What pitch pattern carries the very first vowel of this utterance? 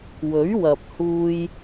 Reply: rising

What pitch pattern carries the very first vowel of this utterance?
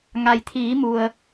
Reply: low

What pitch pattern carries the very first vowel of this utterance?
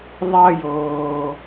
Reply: high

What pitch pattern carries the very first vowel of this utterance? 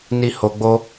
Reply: high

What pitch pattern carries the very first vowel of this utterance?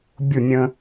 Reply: falling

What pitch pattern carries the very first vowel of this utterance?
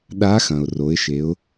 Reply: rising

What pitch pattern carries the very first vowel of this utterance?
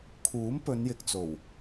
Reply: rising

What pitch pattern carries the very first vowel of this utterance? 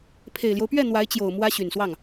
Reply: low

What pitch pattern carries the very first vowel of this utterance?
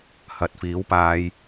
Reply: low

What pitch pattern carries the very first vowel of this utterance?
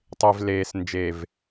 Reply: low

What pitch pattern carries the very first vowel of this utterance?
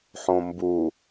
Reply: low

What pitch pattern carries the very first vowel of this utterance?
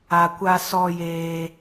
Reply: low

